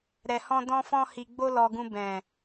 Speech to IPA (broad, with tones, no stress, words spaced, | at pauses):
ɾɛ˧hɔ̃˦ dɔ̃˦fɔ̃˦ hi˧ɡ͡bo˦lɔ˧ɡũ˧ bɛ̃˨